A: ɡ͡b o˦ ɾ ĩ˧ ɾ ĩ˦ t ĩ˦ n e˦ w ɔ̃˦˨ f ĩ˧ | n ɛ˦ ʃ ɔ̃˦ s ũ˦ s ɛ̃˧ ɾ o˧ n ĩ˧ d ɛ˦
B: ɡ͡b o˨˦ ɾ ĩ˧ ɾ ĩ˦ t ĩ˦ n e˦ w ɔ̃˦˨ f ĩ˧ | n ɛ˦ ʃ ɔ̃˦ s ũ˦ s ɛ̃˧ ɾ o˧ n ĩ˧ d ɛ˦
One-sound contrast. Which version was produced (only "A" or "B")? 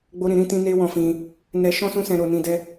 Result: A